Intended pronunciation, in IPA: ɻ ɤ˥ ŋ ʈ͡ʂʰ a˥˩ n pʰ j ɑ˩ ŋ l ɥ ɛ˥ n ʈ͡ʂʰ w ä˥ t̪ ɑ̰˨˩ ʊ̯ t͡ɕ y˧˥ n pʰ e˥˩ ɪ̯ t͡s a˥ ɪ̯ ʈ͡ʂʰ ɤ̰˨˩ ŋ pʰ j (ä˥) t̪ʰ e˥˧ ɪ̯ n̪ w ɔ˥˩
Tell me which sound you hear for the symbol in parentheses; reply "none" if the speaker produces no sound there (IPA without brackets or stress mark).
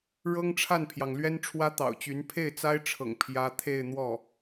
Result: ä˥